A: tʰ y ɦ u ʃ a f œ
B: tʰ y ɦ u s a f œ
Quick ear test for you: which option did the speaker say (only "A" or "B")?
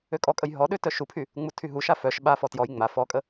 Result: A